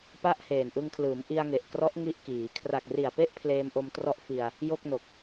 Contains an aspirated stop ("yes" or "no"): yes